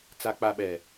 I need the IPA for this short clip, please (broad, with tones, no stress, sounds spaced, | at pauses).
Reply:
t͡s a˨ k͡p a˨ ɓ ɛ˨